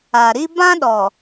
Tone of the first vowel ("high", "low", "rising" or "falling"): low